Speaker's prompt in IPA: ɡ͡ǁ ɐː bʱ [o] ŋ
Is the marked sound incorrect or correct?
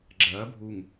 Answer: incorrect